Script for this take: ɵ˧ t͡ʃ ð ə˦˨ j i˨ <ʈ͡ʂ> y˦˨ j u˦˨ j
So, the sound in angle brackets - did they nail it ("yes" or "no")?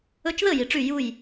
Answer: yes